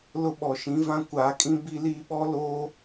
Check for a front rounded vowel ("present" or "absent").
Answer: absent